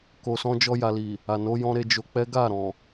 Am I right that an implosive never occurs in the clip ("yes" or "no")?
yes